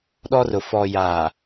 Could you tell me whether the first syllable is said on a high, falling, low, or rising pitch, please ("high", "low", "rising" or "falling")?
high